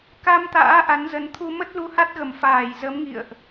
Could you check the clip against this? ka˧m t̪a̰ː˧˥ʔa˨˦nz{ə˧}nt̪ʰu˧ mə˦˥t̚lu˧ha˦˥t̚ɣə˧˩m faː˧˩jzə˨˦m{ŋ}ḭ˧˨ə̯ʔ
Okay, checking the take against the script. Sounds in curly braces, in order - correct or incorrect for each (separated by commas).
incorrect, correct